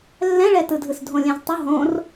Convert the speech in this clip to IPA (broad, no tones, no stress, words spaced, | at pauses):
lːɛ̃ɭɛtɯdʱɯs dʱõlʲɛ̃ztˤʊ ɦõr